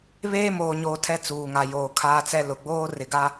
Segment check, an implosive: absent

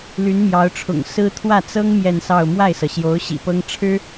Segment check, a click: absent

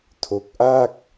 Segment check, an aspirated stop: present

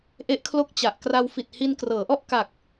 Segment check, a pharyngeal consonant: absent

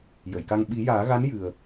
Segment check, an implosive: present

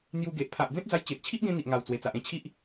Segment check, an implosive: absent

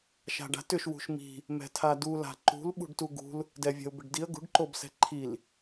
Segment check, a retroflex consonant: present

